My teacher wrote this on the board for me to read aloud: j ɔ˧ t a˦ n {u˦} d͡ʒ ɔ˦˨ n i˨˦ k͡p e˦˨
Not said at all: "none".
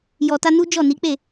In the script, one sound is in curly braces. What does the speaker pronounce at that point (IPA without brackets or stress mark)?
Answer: u˦